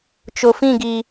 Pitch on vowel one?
low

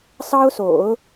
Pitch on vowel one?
high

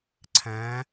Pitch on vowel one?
rising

